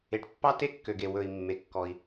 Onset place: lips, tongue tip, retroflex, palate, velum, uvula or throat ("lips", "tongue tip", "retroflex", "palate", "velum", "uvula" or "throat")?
retroflex